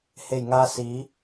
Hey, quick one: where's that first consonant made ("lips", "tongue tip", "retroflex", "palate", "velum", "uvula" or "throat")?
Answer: throat